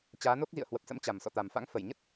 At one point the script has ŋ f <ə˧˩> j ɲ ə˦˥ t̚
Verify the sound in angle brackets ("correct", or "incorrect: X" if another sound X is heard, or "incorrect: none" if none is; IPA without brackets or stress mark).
correct